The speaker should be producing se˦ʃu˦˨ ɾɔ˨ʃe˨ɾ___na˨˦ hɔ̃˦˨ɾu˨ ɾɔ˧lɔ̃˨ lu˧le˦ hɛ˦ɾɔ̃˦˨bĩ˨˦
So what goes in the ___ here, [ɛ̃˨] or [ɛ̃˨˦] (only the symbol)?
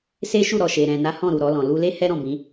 ɛ̃˨